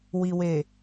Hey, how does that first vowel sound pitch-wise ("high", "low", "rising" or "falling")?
low